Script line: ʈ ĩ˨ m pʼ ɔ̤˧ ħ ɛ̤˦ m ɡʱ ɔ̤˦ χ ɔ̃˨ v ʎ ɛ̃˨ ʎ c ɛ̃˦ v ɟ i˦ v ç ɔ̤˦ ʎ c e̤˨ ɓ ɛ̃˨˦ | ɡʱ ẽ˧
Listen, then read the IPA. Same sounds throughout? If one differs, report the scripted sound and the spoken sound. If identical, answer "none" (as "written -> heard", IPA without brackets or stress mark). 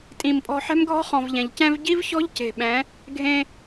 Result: ʈ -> tʼ